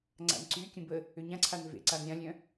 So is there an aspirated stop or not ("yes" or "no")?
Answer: yes